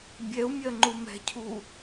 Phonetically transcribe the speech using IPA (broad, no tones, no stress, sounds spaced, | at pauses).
bʲ ɛ u̯ mʲ ɜ ŋ͡ǃ u m ɛ̤ cʰ u